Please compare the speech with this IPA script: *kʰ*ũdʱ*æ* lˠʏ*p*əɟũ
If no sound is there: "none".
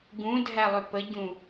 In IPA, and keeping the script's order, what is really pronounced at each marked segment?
ɡ, æ, p

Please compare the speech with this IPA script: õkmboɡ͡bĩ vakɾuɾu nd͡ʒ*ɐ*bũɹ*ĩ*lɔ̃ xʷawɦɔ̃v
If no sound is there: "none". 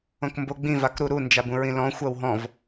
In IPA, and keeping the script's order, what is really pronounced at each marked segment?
a, ĩ

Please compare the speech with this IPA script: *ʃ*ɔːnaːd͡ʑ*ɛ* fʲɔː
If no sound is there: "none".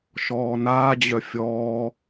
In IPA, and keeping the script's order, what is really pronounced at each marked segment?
ʃ, œ

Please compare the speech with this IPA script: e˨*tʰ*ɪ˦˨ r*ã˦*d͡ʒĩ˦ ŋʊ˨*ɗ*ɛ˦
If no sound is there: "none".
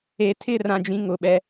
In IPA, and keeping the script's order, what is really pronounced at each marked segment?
tʰ, ã˦, ɓ

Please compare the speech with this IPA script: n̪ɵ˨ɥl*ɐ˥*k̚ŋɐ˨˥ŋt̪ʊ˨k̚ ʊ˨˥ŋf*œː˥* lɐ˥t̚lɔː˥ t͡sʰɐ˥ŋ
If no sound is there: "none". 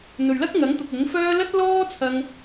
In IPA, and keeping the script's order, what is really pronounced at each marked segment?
ɐ˥, œː˥

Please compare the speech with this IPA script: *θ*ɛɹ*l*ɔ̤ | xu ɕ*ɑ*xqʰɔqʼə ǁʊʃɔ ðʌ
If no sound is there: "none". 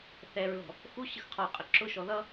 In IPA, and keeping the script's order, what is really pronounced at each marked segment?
θ, l, ə

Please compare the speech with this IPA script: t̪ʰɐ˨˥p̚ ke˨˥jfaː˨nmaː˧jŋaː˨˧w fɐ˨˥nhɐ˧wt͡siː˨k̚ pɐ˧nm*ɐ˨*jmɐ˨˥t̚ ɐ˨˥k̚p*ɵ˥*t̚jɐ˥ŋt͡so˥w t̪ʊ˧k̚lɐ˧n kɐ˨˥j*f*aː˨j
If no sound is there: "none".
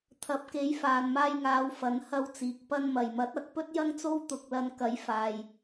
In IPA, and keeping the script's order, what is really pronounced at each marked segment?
ɐ˨, ɵ˥, f

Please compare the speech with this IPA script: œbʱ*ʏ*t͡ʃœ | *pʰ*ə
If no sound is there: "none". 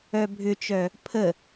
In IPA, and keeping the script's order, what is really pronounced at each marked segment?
ʏ, pʰ

